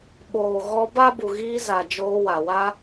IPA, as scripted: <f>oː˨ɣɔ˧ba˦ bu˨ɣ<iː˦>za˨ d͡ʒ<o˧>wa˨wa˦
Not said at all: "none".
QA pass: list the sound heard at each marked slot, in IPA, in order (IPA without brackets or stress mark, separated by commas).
ɓ, iː˧, oː˧